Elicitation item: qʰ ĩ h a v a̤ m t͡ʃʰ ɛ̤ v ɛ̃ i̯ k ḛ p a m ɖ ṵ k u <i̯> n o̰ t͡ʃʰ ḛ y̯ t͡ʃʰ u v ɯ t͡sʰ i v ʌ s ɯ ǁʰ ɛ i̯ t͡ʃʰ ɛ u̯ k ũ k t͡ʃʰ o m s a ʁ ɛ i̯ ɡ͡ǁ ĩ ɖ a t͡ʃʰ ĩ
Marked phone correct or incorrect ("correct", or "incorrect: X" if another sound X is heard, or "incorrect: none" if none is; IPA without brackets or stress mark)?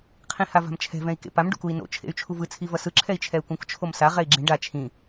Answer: correct